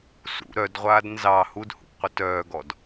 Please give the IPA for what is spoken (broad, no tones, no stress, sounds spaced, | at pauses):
s ṵ ɾ œ d ʁʷ aː d n z ɑ h u d h ṵ p qʷ ə t œː ɡ ɔ d